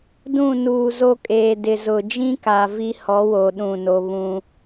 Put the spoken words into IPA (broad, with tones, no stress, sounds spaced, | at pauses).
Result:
d ũ˦˨ n uː˨ z o˦ kʼ eː˨ d ɪ˨ z ʊ˨ d͡ʒ ĩ˦ k a˨ v i˦ h ɔ˨˦ w o˨ ɗ ũ˦˨ n o˦ β ũ˦